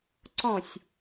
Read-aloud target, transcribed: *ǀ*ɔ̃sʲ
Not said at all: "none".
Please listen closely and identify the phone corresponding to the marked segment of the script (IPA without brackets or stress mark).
ǀ